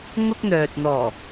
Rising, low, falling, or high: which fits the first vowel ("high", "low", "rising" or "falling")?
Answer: high